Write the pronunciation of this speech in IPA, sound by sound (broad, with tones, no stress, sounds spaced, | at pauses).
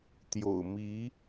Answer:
t̪ j o̰˨˩ ʊ̯ m i˧˥